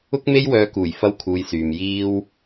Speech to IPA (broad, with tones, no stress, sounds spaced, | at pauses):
ʊ˥ k̚ m e˥ j w œː˧ k uː˨˩ j f ɐ˥ w kʰ uː˧ j s yː˨ m j iː˥ w